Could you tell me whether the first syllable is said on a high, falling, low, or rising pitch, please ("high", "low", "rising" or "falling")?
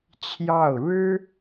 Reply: falling